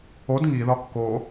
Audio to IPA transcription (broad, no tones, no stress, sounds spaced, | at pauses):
o d ŋ i ð ɒ kː o